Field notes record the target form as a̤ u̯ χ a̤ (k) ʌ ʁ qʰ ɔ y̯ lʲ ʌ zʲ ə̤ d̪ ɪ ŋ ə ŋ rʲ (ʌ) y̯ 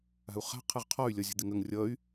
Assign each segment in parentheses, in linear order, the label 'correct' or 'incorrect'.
incorrect: qʰ, correct

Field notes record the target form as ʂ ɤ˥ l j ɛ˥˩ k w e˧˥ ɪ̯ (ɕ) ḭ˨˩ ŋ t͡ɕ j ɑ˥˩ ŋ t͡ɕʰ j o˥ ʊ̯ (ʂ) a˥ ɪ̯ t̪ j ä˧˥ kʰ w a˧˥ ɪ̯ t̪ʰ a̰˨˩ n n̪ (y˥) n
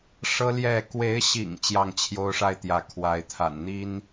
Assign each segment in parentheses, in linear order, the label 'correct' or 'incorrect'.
correct, correct, incorrect: i˥

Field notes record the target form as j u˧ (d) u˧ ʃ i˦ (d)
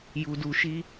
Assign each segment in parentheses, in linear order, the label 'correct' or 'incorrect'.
correct, incorrect: none

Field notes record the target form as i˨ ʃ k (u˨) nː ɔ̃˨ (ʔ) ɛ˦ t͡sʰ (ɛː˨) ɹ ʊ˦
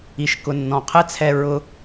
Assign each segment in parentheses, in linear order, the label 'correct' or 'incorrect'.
incorrect: ʊ˨, incorrect: qʰ, incorrect: ɛ˨

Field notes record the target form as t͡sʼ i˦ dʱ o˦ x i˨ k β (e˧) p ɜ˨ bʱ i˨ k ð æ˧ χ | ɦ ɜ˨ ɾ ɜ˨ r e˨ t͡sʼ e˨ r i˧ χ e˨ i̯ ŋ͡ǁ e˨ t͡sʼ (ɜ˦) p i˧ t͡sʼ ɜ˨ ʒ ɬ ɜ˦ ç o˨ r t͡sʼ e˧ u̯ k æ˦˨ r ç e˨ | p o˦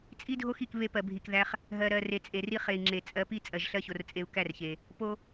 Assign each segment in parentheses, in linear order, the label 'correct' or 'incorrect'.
correct, incorrect: ɜ˨˦

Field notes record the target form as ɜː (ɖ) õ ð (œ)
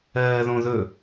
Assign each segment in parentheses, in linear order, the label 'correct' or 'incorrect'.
incorrect: ð, incorrect: ɵ

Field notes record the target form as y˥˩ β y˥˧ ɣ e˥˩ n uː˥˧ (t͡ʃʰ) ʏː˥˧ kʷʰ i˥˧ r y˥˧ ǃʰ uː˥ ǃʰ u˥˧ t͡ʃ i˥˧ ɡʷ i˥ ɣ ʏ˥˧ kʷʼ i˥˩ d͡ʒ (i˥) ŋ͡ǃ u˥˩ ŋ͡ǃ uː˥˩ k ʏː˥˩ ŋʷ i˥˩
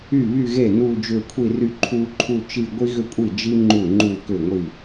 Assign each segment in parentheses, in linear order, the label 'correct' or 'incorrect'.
incorrect: d͡ʒ, correct

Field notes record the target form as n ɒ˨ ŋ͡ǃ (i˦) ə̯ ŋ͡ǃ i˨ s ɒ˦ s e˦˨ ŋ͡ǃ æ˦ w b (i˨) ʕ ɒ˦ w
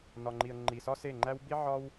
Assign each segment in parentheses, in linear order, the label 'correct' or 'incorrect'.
incorrect: i˨, incorrect: i˦

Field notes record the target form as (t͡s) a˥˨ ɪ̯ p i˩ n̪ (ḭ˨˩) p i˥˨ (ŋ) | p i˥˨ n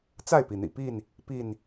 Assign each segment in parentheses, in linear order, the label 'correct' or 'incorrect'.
correct, correct, incorrect: n

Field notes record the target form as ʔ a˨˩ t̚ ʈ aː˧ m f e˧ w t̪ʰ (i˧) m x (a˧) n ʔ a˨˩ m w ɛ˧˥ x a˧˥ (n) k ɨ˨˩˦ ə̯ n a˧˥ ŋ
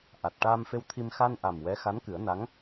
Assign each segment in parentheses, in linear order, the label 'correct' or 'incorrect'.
correct, correct, correct

